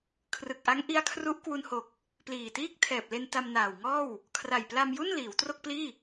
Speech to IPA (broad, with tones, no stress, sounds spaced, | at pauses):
kʰ r ɯ˨˩ k̚ ʔ a˦˥ ŋ ʔ i˧ a̯ kʰ r u˦˥ ʔ k w u˧ n h o˨˩ k̚ | p l iː˨˩ t iː˥˩ k̚ tʰ ɛː˨˩ p̚ l e˧ n t a˧ m n aː˨˩ w ŋ ɔː˥˩ w | kʰ r a˨˩ j p l a˧ m j u˥˩ n l iː˩˦ w t r o˥˩ k̚ p l iː˥˩